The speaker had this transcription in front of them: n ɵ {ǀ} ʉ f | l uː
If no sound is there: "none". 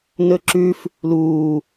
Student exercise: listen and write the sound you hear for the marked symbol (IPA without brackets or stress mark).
ǁ